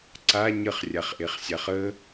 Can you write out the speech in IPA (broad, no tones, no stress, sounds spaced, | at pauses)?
ǀ a ɲ ə χ rʲ a χ ʔ e χ sʲ a χ ə